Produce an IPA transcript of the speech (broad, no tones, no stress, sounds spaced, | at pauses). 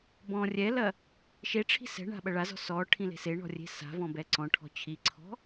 b ɔ̃ rʲ ɛ l ɐ | ʃ e ʈ͡ʂʰ i̤ s ɛ̤ ɳ a̤ ɓ ɐ ɭ a z ɔ̤ s ɔ ʈʰ ĩ l e̤ s e ɳ ɔ̤ rʲ e̤ s a̤ v ɔ̃ b ɛ ǀ ɔ̃ ʈʰ ɔ̤ t͡ɕʰ i ǀʰ ɔ̤